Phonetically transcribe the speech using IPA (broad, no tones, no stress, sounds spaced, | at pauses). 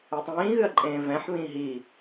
e tˤ ĩː ɣ ɨ ɐ̯ ǃʼ ẽː v ɛ̃ ħ β ĩː ɦ i